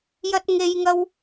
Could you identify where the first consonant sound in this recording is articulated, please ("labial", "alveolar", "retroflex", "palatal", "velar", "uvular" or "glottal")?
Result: palatal